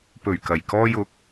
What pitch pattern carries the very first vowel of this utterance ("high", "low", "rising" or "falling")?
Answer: low